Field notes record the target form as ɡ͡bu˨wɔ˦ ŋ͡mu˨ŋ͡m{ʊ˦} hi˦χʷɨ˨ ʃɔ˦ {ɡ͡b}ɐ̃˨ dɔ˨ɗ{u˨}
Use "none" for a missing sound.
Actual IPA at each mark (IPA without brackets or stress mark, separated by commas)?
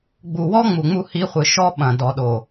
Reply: u˦, ɓ, o˨